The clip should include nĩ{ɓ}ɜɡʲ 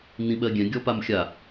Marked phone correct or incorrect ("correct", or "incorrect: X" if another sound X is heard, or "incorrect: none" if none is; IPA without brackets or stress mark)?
correct